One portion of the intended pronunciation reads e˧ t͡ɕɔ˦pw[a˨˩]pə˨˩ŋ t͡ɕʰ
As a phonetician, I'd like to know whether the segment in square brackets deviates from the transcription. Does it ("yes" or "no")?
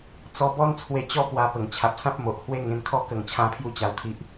yes